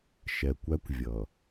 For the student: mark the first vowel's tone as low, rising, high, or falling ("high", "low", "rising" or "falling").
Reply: low